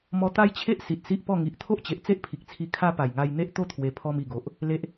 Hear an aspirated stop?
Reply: yes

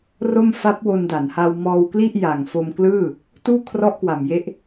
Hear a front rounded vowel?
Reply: no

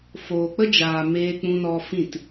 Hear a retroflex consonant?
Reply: no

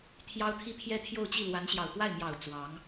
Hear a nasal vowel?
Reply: no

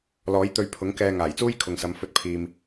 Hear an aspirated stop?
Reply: yes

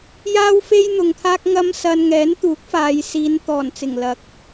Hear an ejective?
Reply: no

